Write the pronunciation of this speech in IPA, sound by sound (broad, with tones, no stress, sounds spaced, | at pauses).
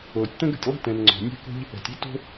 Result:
oː˩ tʲ t̪ ə̃˥ ɡ ə̤˩ tʲ lˠ i̤˥ t ɛ̃˩ n ŋ͡ǀ ɔ̤˩ nʲ ɛ̤˥ k o̤˥ ʎ | ɛ̤˩ tʲ i˥ t o̤˥